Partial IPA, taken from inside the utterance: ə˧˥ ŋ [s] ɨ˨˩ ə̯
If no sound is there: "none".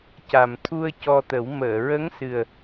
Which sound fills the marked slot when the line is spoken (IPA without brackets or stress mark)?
s